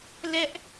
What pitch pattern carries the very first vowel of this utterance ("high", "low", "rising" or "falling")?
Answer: high